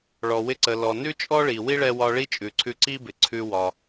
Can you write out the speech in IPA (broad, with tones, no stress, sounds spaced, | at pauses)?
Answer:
ɭ ɔ˩ w ɪ˧ ǀ ə˩ l ɔ˩ n ʉ˥ t͡ʃʼ ɔ˥ ɭ i˩ w i˥ ɭ ɛ˧ w ɒ˧ ɭ i˥ t͡ʃʼ ʉ˩ ǀʰ ʉ˧ ǀ i˥ b ɪ˩ ǀʰ ʉ˧ w ɒ˩